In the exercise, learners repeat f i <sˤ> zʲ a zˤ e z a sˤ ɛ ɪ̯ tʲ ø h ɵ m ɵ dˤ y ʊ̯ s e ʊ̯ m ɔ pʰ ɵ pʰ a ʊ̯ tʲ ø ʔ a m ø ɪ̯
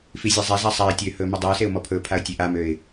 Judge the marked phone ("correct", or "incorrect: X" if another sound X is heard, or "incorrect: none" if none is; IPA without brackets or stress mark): incorrect: none